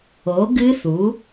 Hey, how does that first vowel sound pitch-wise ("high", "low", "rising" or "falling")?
rising